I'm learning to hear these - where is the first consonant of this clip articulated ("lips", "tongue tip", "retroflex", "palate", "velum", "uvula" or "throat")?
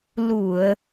tongue tip